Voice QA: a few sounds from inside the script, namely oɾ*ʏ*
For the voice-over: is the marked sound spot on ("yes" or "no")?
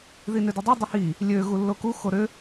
yes